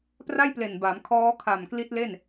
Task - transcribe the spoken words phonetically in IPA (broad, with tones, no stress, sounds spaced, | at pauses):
p r a˥˩ j p l e˨˩ n b a˩˦ m kʰ ɔː˦˥ kʰ a˨˩ m k l i˦˥ t̚ l e˥˩ n